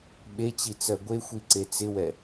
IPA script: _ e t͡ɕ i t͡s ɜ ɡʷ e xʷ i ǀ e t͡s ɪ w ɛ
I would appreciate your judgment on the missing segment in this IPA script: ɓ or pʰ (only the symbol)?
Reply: ɓ